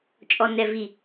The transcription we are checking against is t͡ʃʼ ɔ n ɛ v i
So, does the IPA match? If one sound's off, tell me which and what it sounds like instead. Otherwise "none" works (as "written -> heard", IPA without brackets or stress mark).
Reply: none